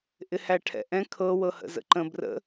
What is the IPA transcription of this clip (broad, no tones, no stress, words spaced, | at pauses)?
ʔɪhæʈʰɛ̰ʔɛ̃ kʰɤ wɤhə̰zə̰ǃə̃ brə̰